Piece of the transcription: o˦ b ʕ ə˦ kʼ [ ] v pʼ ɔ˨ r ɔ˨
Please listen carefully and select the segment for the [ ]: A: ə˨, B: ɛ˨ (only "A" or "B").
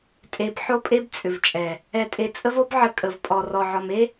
A